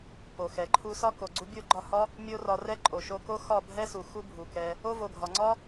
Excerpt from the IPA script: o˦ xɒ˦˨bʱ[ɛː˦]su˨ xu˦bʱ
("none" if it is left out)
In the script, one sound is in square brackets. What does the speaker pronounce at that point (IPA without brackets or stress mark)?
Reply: ɛ˦